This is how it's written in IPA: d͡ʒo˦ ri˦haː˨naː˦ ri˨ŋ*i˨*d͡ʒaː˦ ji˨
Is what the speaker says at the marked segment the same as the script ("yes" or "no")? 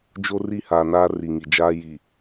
yes